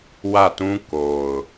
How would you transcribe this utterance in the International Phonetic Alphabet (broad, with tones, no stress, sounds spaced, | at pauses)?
w ä˦˨ t ũ˦ k o˨ ʊ̯